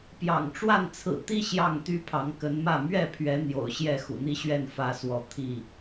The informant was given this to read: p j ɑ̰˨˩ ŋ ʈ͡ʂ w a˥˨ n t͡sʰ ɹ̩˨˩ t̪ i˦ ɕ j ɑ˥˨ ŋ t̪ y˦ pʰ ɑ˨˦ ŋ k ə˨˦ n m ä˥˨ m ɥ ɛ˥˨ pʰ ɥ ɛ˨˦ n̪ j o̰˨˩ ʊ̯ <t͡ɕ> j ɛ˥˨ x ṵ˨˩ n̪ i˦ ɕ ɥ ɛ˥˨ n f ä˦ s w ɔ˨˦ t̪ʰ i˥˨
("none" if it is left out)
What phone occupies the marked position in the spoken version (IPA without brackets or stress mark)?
ɕ